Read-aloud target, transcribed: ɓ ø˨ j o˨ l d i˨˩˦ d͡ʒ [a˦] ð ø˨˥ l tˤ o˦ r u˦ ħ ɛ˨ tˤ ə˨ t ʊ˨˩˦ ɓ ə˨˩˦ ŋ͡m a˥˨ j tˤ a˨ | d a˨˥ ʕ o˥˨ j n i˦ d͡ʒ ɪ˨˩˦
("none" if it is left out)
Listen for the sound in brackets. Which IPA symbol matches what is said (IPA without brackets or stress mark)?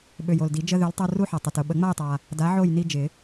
ə˦